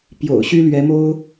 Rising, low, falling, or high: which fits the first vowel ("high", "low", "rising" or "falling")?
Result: low